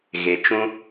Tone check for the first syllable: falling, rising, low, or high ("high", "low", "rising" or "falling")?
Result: low